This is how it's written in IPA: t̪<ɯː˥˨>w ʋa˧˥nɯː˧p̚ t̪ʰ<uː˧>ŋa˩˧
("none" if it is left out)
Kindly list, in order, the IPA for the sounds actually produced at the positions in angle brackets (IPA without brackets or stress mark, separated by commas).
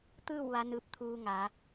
ɯː˥˨, uː˧